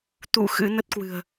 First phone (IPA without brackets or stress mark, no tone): t̪